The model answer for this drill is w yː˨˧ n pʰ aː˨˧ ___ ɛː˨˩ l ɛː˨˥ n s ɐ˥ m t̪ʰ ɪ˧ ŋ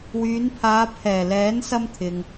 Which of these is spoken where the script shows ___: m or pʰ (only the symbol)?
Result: pʰ